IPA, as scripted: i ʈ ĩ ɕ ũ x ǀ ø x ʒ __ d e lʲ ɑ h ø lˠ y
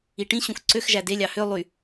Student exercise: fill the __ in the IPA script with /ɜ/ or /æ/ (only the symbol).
æ